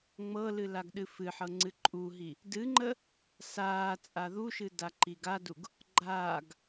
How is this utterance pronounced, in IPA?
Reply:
ŋ͡m ɤ l ɨ l a ɡ ɗ ɨ f ɨ ħ ɤ ŋ͡ǀ ɨ ǃʼ u ɦ i | d ɨ ŋ͡ǃ ə | s aː t͡sʼ a ð u ʃ ɨ d a ǃ i ɡ a d u ɡ | ɡ͡ǃ aː ɡ

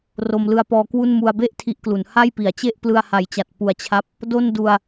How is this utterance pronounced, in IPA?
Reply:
r o˧ m l ɯ˦˥ a̯ p ɔː˧ k w u˥˩ n m u˧ a̯ b e˥˩ ʔ tʰ i˦˥ ʔ k l u˩˦ n h a˥˩ j p i˨˩ a̯ t͡ɕ e˥˩ ʔ p l ɯ˧ a̯ h a˨˩ j t͡ɕ a˨˩ t̚ p u˨˩ a̯ t͡ɕʰ a˦˥ p̚ | d o˥˩ n d u˧ a̯

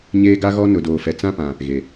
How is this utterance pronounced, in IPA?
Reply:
ɲ eː˦ ɡ a˦ ɣ ɔ˦ n ʊ˨ d oː˨ f ɛ˨ t͡s ã˦ p ã˨ | ɣ e˨

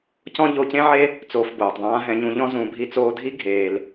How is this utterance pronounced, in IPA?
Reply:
c ɔ̃˦ ʎ o˧ c ẽ˦ ʕ e˦ | t͡s oː˧ f b oː˨ tˤ ðˤ ãː˦ ɦ ɛ̃˧ ɲ ũ˧ ʎ ɔ̃˦ z ũ˨˦ bʱ i˧ t͡s oː˧ dʱ i˦ ɡʱ eː˧ l

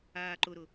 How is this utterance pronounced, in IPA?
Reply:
aː ǃ ʊ ɾ ʊ

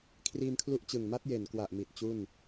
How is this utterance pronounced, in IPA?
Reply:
kʰ r iː˧ m kʰ l u˦˥ ʔ t͡ɕ ɯ˨˩ ŋ m a˦˥ t̚ j e˨˩ n k w a˨˩ ʔ m i˨˩ t̚ t͡ɕ u˥˩ n

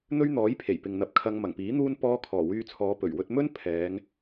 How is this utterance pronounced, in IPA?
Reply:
n̪ ɵ˥ ɥ n̪ ɔː˨˥ j pʰ e˨˩ j p ɪ˨ ŋ n̪ ɐ˨˥ p̚ kʰ ɐ˧ ŋ m ɐ˨˩ ŋ p iː˨˥ n̪ uː˥ n p ɔː˧ kʰ ɔː˨˩ w yː˧ t͡sʰ ɔː˨˧ p ɵ˨˩ ɥ w ɵ˧ t̚ m ɵ˥ n pʰ ɛː˨˧ ŋ

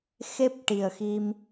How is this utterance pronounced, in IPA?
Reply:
x e˦˥ p̚ ʈ i˨˩ ə̯ x i˧ m

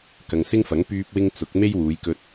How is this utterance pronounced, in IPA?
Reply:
k ɐ˨ ŋ s ɪ˥ ŋ f ɐ˨˥ ŋ p yː˧ p̚ w ɪ˧ ŋ t͡s ʊ˨˥ k̚ m e˥ j w uː˨˧ j k ɵ˧ t̚

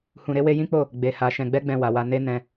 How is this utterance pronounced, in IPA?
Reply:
h ũ˧ ɾ e˦ w e˦ j ĩ˦ k͡p o˦˨ | ɡ͡b e˧ h a˧ ʃ ɛ̃˧ ɡ͡b ɛ˦ ɡ͡b ɛ̃˧ w a˨ w a˧ n e˦ n ɛ̃˧

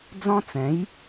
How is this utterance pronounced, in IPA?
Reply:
d͡z ɔ̃˦ t͡s ɛ̃˨˦ j

